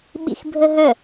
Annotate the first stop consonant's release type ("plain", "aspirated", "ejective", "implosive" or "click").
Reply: implosive